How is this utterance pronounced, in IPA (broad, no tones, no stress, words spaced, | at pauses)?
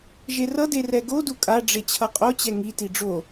ʒerʌde rɛɡodu kʼaɖ͡ʐe t͡ɕʰʌqʼot͡ɕɛ ŋiti ɖ͡ʐo